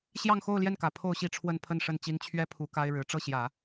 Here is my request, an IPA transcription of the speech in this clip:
ɕjɑ˥˧ŋxo˥˧ʊ̯ ljɛ˥˩nkä˨˩ pʰo˥˧ʊ̯ɕi˥˧ʈ͡ʂʰwə˥˧n pʰə˥˧nʂə˥˩nt͡ɕi˥n t͡ɕʰɥɛ˥pʰu˧˥ ka˥ɪ̯ɻɻ̩˧˥ ʈ͡ʂɤ˥˩ɕjä˨˩˦

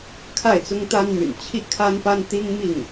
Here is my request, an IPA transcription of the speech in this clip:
kʰa˥˩ɪ̯t͡sʊ˥ŋt̪a˥nmy̰˨˩n t͡ɕʰi˥˩kʰa˥npa˥n t̪i˥ŋmi˥˩ŋ

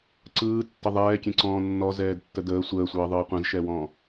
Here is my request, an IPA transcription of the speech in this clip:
ǀɯːtːə ðˤɛːkʲɛ̃ǀɔ̃ː nːɔzɛːdtːə dəː sʷəːsʷɯːðˤɯː qʷɛ̃zʃɛwɔ̃ː

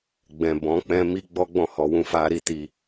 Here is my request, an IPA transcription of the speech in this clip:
ɡ͡bɛ̃˨bɔ̃˨˦k͡pɛ̃˦ mi˦ɡ͡bɔ˦ɡ͡bɔ̃˦˨ hɔ˧wũ˦ fa˦ɾi˦ti˧

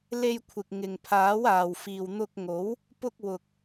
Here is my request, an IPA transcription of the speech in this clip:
le˧jkʷʰɪ˨k̚ ŋɪ˨ŋpʰaː˨˥waː˨w fiː˨wn̪ʊ˧k̚ŋo˨˥w | pʊ˧k̚wʊ˨k̚

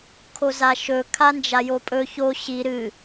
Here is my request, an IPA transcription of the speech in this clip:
kʰozaʃɵ kʰand͡ʒajopʼɵ ço ɕi ɾɨ

